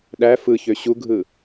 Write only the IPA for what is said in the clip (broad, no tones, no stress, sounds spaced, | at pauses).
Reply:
ɗ æ f ɯ ç ø ɕ u ɡʱ ɯ